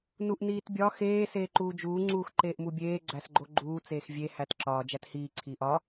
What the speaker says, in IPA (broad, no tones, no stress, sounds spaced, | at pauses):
n u ʔ n iː t bʲ ɒ x eː s eː ǃ uː d͡ʒ uː ŋ͡ǀ uː x ǃ eː ʔ m u bʲ eː ɡ͡ǀ æ s ɡ͡ǃ o ɡ͡ǃ uː t͡s eː x vʲ e h æ t ǁ ɒː d͡ʒ æ t h iː ǀʰ iː ʔ ɒ